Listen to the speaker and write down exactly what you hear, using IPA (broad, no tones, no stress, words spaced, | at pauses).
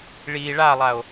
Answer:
ɭi ɭalˠao̯